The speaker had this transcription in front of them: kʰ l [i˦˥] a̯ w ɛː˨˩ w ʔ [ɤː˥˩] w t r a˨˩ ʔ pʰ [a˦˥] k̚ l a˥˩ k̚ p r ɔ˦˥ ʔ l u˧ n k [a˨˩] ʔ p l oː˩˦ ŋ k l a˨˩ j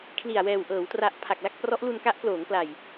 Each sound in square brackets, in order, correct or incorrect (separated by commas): incorrect, incorrect, incorrect, incorrect